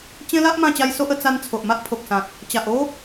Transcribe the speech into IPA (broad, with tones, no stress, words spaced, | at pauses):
t͡ɕẽ˦la˦ʔ mã˥˧t͡ɕa˦jso˦ʔ ə˧t͡sa˧n t͡sʰo˨ʔma˦ʔpʰo˨k̚sã˨t̚ | t͡ɕa˨ʔo˦